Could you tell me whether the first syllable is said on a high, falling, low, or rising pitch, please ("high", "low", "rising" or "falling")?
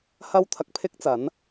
high